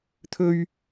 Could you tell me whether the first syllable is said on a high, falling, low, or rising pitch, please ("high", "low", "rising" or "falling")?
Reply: high